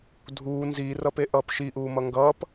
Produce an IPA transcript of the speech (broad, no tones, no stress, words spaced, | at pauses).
dʱuː nziːrʌpe ʔʌːpʃi ʔuːmʌŋɡʌːp